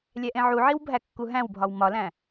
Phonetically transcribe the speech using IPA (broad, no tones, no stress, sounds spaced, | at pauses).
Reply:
lʲ æ ʔ ẽ ʕ u ʕ i w bʱ æ kː u ɦ æ̃ w bʱ ɒ w m ɒ l æ̃